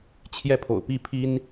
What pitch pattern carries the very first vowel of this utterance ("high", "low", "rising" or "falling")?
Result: falling